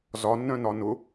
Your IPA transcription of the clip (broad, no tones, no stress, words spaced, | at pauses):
zɒnːœ̃nɒ nʊ